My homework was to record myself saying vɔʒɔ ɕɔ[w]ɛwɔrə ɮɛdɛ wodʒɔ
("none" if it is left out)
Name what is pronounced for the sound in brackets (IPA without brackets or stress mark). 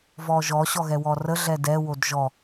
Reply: ɣ